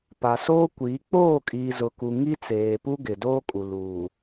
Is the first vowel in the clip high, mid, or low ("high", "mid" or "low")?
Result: low